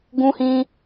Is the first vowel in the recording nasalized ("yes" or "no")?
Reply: yes